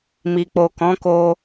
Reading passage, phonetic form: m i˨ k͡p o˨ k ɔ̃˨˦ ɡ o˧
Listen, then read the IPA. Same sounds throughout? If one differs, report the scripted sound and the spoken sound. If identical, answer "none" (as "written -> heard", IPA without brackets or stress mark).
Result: ɡ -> k